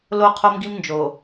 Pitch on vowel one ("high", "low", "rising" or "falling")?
high